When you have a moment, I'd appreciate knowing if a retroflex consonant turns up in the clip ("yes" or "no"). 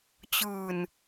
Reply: no